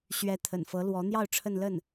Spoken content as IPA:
ɕɥɛ˧˥t̪ʰə̰˨˩n fɤ˧˥lwɔ˧˥n̪jɑ˥˧ʊ̯ ʈ͡ʂʰə˥˧nlə˥˩n

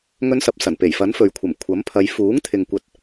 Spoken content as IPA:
ŋɵ˥nsɐ˧p̚sɐ˨˩n pe˨˩jfɐ˨˥n fɵ˨ɥkʷʰɐ˨˩m kʷʰɐ˨˥mpʰɐ˨˧j fuː˨˥ŋt̪ʰɪ˨ŋkʷɐ˨˥t̚

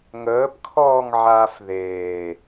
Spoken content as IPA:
ŋəːpkʰɔːŋʕaːf ðeː

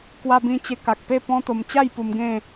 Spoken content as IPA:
kwa˧bĩ˧ t͡ɕe˧ ka˨k̚pe˥˧ pɔ̃˦t̪o˧m t͡ɕa˥˧j pu˧mɡẽ˥˧

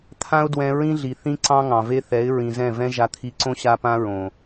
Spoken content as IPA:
t̪ʰã˦ʊ̯ dwɛ̃˧ɹĩ˦ɮi˨ θĩ˦ǀɑ̃˦ ŋɑ̃˨ve˦ θɛ˨˦ɪ̯ɹĩ˨ zɛ̃˦˨vɛ̃˦ ʒa˧t̪ʰi˧ǀõ˦ ɕa˦pã˦ɹõ˨

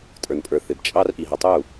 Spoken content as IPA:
tʼə˞˨npʼə˞˨ θɪ˨bt͡ʃʼɑ˦r ʔi˨ɦʌ˨tˤu˦˨

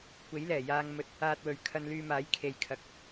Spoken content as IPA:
kʷe˨˥jlɛː˨˩jaː˧ŋmɵ˧t̚ | aː˧t̚wɵ˨ɥkʰɐ˧nlyː˧ maː˨˥j kʰe˧jkʰɐ˧k̚

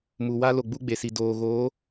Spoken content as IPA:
mu˨ wa˦ lo˨ɡ͡bu˦ɡ͡be˨si˨ doː˨ɣoː˨˦

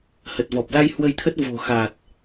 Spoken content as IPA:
hə˨˩t̚vɔ˨˩p̚la˧j hwə˧jt̪ʰə˦˥t̚ vo̤˨˩xa˨˩t̚

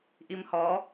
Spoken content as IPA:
ʔimhɔ

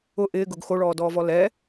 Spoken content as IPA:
ʊ ʔɪːɡʊɡ xoɭɔːdɔːvɔ lɛ

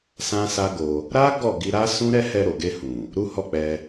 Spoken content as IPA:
sã˦sa˦ɡo˧ | ɾa˦ ɡɔ˦˨ɡi˧ɾa˦ sũ˦ɾɛ˦ hɛ˧ɾo˨ɡe˧hũ˨ | ɾu˦hɔ˦˨k͡pɛ˧

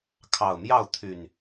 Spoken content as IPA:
kʰɑ˨˩ʊ̯mjɑ˥˨ʊ̯ t̪ʰy˨˩n

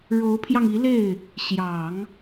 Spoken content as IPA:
ɻo˧˥ʊ̯pʰjɑ˧ŋi˧˥le˥˩ɪ̯ | ɕjɑ˨˩˦ŋ

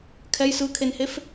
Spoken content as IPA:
kʰɛj sɯkʰenhef

